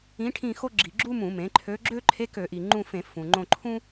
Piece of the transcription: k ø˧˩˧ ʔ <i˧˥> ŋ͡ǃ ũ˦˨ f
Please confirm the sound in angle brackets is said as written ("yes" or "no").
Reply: no